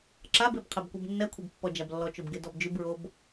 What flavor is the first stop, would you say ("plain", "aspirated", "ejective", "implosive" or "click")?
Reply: click